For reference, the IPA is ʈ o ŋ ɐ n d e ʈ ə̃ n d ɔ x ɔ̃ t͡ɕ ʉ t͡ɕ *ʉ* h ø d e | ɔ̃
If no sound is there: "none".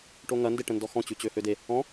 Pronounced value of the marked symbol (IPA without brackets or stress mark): ø